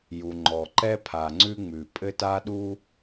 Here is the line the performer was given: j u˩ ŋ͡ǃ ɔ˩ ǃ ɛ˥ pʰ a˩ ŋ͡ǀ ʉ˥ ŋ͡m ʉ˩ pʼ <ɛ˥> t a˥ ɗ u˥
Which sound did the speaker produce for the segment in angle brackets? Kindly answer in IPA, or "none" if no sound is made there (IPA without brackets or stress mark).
ɘ˥